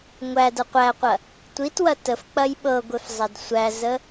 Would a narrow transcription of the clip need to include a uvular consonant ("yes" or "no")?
yes